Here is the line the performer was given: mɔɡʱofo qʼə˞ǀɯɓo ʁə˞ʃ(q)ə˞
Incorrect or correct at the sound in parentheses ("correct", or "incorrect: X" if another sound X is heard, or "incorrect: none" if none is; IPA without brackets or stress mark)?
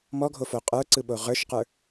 correct